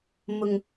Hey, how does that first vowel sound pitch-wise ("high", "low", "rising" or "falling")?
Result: low